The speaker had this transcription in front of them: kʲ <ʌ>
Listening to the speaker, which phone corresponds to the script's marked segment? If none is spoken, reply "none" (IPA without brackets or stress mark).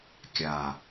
a